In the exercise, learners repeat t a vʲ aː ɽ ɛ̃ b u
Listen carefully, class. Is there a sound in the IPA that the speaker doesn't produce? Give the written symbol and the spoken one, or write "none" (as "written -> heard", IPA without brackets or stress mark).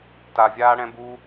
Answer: none